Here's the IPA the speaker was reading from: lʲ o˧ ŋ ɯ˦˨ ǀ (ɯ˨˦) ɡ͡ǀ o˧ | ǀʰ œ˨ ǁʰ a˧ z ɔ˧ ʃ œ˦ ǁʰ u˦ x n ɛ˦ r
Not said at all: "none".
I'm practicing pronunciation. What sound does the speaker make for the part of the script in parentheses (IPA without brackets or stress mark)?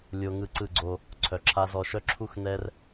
ɯ˦˨